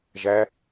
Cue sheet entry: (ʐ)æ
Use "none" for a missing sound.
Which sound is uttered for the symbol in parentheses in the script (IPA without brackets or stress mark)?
ʒ